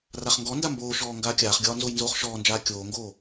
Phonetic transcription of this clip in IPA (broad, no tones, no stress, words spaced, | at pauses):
raχŋɡɔnda mboːʃɔː ŋɡaːkʲaːχɡʲɒː nzojnzoːχʃɔːnd͡ʒaː kʲoːŋɡoː